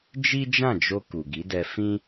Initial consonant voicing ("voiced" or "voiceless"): voiced